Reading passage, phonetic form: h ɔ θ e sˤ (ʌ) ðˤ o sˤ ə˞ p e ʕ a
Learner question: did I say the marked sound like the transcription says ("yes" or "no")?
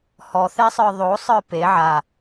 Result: no